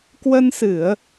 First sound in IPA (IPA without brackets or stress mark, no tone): k